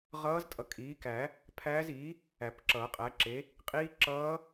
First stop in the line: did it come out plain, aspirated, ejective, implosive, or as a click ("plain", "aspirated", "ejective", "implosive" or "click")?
ejective